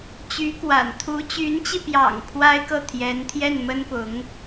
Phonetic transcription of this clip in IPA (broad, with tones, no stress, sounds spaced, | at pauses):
t͡ɕ y˧˥ k w a̰˨˩ n t̪ʰ u˧˥ t͡ɕ y˧˥ n t͡ɕ i˧ p j ɑ̰˨˩ ŋ pʰ w a˥ ɪ̯ k ɤ˥˩ t̪ʰ j ɛ˧˥ n t̪ʰ j ɛ˥˩ n m ə˥ n p ʊ˧˥ ŋ